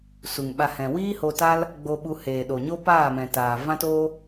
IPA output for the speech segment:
s u˨ ŋ ɓ a˧ h ɛ̃˨ w iː˦ h o˧ t a˦ l | ɡ͡b o˧ ɓ u˧ h eː˨ ɗ o˨ ɲ o˦ p aː˦˨ m ɛ̃˨ t aː˨ v ã˦ t oː˦

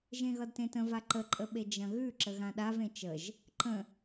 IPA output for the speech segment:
ʒ ẽ ɣ ʌ d t ẽ t ə̃ v a ǃ ə ǃʼ ə ɓ e d͡ʒ ɐ̃ ɣ ʉ ǁ ə ɣ ã ɗ a v ẽ t͡ʃ ə ʒ | ǃ ə̃

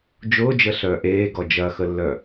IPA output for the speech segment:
d͡ʒ ʊː d͡ʒ ə ɬ œː ʔ eː ɡ ɔ d͡ʒ ɐ x ə lː œ

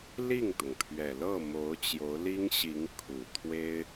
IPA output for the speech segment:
l i˥˩ ŋ t̪ ʊ˩ ŋ pʰ ɥ ɛ˨˩ l ɤ˥˩ m o˧˥ ʊ̯ t͡ɕ j o˧˥ ʊ̯ l i˥ ŋ ɕ i˧˥ ŋ kʰ u˨˩ t̪ʰ w e˥ ɪ̯

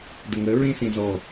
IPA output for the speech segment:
d ə ŋ ə ɹ ĩ s ĩ z ɔ

